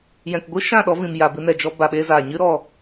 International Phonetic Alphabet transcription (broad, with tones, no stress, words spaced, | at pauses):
jɛ̃˨kɡʷɨ˦ʃã˦˨ ɗɔ˧vĩ˨m ja˨bɨ˧nɛ˨d͡ʒɔ˧ ba˨ɓe˧zaː˨ ɲɨ˧ɾɔ˨